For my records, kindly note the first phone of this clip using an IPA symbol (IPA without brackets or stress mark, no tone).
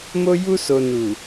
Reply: m